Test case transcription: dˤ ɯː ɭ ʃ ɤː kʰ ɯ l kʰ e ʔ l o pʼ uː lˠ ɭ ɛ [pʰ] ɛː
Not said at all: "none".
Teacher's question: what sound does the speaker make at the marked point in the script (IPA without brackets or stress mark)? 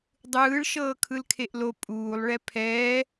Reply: pʰ